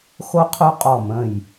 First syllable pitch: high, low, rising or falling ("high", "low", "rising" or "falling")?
high